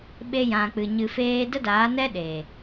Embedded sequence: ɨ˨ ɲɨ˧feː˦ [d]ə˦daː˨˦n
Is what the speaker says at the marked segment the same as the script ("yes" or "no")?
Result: yes